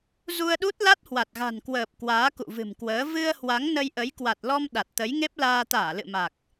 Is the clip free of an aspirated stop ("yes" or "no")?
yes